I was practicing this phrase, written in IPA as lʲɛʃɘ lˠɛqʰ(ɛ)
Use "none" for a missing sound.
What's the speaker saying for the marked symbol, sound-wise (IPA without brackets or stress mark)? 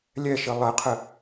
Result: ɘ